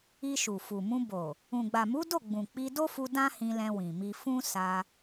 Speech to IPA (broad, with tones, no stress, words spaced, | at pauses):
i˧ʃu˨fu˨mũ˧ bo˨ | ũ˨ɡ͡ba˨mu˨˦do˦˨ ɡ͡bũ˨k͡pi˧do˦fu˧ dã˦hĩ˧lɛ̃˧ wĩ˨mi˧fũ˦ sa˧